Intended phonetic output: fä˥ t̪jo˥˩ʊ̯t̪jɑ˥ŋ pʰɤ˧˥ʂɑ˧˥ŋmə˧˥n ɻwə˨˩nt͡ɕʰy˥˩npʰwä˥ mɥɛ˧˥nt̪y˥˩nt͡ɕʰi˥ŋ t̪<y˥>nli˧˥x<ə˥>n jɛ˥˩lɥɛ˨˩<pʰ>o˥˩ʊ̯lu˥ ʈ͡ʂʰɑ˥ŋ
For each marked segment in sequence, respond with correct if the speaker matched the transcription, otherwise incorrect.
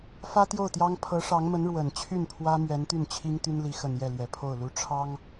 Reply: correct, incorrect: ə˨˩, correct

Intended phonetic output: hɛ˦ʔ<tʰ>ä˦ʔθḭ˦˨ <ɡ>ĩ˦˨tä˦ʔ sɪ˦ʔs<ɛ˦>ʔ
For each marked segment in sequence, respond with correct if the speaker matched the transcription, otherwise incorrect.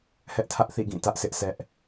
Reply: correct, correct, correct

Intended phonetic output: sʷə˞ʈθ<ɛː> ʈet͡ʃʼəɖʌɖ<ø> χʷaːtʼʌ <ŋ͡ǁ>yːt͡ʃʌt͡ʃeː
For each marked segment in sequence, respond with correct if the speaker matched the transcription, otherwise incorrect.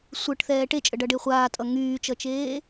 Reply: correct, incorrect: e, incorrect: ŋ

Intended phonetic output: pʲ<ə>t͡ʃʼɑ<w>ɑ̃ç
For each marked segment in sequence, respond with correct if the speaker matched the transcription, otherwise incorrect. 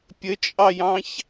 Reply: correct, incorrect: j

